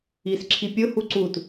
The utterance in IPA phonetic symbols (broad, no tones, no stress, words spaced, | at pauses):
isǁʰipʲʊ huǀut